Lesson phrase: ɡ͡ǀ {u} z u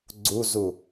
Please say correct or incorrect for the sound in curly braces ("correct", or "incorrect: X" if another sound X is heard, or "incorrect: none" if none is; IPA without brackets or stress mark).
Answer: correct